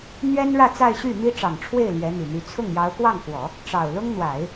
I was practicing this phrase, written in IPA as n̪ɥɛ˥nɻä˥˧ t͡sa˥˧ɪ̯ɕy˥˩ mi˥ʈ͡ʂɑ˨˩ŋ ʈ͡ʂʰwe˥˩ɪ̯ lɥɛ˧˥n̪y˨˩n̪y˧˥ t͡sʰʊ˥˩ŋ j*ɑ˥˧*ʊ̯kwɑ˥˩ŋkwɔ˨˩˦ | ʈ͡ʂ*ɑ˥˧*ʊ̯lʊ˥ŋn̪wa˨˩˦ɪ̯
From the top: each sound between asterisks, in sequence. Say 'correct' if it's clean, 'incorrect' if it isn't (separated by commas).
incorrect, incorrect